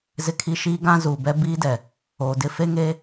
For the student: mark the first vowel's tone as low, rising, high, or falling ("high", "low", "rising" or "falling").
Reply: high